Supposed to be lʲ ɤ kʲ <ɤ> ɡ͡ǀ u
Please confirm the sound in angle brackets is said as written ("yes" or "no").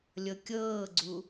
no